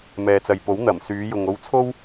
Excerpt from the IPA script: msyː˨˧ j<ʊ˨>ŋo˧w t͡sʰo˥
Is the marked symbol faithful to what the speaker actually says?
yes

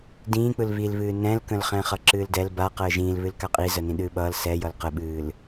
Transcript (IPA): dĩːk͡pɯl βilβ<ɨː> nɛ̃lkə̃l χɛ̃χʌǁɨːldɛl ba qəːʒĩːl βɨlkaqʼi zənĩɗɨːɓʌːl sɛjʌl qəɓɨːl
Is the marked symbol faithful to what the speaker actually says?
yes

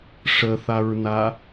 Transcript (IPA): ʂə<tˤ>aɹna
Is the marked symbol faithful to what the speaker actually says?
no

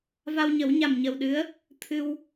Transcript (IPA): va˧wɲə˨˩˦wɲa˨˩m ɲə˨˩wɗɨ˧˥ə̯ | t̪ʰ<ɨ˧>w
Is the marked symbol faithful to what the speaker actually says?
yes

